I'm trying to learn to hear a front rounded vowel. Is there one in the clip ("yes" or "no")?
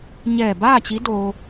no